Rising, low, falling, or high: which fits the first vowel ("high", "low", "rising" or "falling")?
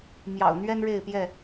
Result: low